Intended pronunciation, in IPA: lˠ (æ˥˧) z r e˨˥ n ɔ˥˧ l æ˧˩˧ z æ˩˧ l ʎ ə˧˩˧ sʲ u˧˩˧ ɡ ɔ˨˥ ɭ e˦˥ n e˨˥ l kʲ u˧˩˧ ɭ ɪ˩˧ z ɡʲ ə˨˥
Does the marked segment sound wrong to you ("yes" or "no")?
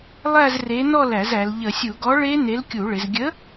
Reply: no